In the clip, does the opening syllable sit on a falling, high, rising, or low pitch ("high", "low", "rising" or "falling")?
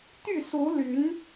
falling